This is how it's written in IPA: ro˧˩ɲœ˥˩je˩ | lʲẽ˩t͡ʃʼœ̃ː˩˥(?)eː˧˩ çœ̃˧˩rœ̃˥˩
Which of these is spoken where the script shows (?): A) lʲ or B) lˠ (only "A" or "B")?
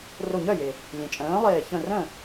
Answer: B